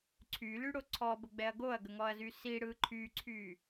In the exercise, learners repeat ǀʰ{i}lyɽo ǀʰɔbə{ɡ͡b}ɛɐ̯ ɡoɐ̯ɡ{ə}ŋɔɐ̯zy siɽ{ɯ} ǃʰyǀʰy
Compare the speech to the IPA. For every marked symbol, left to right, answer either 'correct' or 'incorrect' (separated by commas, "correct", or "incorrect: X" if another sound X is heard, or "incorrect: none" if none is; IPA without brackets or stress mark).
incorrect: y, correct, correct, correct